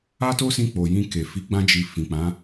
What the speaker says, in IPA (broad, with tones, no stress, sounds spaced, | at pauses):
a˦ t o˦ s ĩ˧ k͡p o˨ j ĩ˧ k e˨ f i˨˦ ɡ͡b ã˧ d͡ʒ i˨ f ĩ˨ k͡p ã˨˦